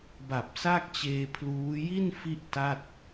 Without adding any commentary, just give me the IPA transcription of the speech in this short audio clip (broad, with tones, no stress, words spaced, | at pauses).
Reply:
ba˨˩p̚sa˥˩k̚t͡ɕeː˧ pʰluː˦˥ ji˥˩n fi˥˩ʔta˥˩t̚